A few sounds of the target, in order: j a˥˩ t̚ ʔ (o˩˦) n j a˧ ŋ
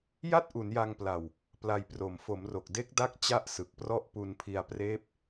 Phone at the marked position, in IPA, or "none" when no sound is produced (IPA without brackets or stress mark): u˩˦